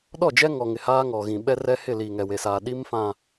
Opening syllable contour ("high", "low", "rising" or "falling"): falling